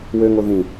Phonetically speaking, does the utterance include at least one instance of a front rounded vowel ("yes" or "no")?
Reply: yes